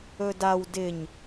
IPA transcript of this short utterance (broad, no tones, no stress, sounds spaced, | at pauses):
ɵ d a w d ɪ ɲ